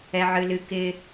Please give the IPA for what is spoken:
ɛ ʕ ɨ l ɨ k ɪ

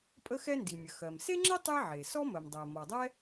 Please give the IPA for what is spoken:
pʼ ə˥ x ɛ˥ n d i˩ mʲ ə˩ x ɜ˩ m s e˥ ŋ͡ǁ ɛ˥ tˤ e˥ ʕ e˩ s ɔ˥ m ɜ˩ m dˤ ɜ˩ m ɔ˩ dˤ ɛ˥

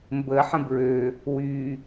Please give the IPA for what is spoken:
m b ə ħ ə̃ b ɹ ø | w y

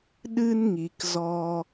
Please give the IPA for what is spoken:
ɗ ɨ˦ n ŋ i˨ k z ɔ˧

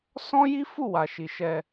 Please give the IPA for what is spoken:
s ɔ̃˦ j i˦ f u˦˨ w a˨ ʃ i˨ ʃ ɛ˧

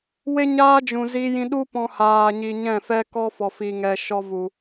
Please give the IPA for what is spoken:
w e˦ ɲ aː˦ d͡ʒ ũ˨ z i˧ j ĩ˧ ɗ u˦ p ɔ̃˧ h aː˨ ɲ i˨ ɲ ɛ̃˦˨ f ɛ˦ k ɔ˦ f ɔ˨ f i˨ ŋ ɛ˨ ʃ ɔ˧ v u˨

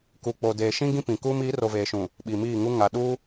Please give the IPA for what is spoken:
k u˨ k͡p o˨ d eː˨ ʃ ĩ˦ ɡ ĩ˦ p ĩ˨ k uː˦ m iː˨˦ r o˨ v eː˨ ʃ ũ˨ | ɓ i˨ m iː˦˨ ŋ u˦ ŋ a˨ ɗ u˦

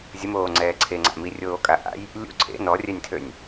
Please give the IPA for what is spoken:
zʲ ə m oː ŋ͡ǀ ɛː ǀʰ e ŋ͡ǀ a̰ m i rʲ oː kʼ a ʔ a̰ j | lʲ ṵ ǀʰ ḛ n ɔ rʲ ɛ nʲ tʰ ø nʲ

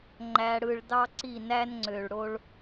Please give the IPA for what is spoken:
ŋ͡ǃ æ˨ ɽ ɯ˨ ɭ d ɑ˧ ǀ i˦˨ n æ˦ n ŋ͡ǀ ø˨ ɭ ɽ o˦ ɭ

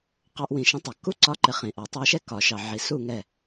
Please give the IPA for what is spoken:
q ɑ˥ ʔ w ĩ˧˥ ʃ ə̃˧˥ tˤ ɑ˨ k u˥ ǀ ɒ˧˥ ǃ ɪ˨ χ ĩ˨ ʔ ɔ˨˩˦ tˤ ɑ˧˥ ʃ ɛ˥ k ɒ˨˩˦ ʃ ɑ˨ ʕ i˨ s u˥˨ ŋ ɛ˥˨

